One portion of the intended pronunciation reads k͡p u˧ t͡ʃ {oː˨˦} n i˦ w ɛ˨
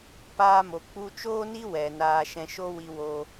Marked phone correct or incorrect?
incorrect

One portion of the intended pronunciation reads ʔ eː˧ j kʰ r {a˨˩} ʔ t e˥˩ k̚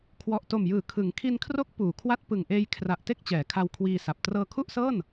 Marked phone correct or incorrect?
correct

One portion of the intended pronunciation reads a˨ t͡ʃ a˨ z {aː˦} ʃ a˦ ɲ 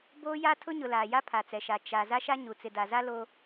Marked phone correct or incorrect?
incorrect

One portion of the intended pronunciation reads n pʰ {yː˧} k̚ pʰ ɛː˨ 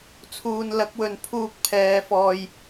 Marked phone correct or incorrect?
incorrect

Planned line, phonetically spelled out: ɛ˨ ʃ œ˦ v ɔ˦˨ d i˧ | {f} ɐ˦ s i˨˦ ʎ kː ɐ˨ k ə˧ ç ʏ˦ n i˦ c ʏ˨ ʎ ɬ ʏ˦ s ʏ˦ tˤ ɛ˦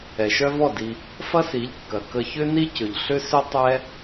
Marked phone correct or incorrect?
correct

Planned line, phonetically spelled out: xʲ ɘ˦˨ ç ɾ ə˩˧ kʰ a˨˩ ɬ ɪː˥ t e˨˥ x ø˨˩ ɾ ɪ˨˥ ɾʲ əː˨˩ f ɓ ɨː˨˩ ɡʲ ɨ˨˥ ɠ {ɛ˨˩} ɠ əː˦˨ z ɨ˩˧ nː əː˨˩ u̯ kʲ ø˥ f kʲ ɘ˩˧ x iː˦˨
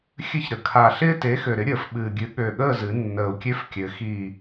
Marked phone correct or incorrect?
incorrect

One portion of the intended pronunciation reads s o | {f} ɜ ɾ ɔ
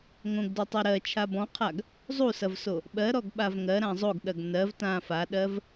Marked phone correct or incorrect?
incorrect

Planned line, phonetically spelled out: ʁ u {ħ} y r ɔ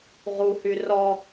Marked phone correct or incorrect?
incorrect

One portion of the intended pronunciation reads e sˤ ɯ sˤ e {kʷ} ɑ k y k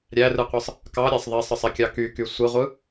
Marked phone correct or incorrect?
incorrect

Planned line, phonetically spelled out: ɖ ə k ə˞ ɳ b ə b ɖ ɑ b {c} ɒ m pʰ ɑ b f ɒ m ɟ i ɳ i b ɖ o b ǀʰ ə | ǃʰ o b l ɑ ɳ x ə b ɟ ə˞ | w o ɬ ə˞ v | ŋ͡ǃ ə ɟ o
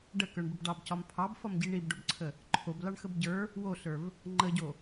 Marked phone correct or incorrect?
correct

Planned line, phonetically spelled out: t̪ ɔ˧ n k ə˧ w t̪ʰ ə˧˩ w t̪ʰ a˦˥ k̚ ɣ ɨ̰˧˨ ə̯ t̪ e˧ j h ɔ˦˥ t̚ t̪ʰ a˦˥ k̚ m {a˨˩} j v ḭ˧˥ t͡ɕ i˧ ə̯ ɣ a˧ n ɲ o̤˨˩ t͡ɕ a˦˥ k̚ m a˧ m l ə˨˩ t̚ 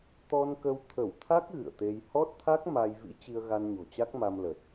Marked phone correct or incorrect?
incorrect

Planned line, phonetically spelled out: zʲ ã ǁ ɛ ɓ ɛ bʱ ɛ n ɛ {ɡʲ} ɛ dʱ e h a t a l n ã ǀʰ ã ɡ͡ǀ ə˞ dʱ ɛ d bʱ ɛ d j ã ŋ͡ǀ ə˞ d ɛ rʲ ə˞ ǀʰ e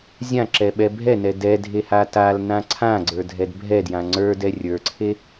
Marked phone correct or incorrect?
incorrect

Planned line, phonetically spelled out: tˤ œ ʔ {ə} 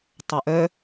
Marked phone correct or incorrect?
incorrect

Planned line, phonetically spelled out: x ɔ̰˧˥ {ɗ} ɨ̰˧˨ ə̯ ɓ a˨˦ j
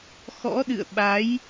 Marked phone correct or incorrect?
correct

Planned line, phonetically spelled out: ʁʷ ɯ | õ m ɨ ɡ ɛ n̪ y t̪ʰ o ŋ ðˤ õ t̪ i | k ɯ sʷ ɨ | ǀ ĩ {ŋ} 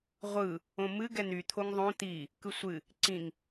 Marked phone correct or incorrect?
correct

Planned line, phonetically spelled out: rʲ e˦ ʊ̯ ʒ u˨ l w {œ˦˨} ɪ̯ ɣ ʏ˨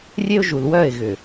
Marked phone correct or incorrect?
correct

